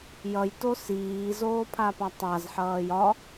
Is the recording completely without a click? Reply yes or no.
yes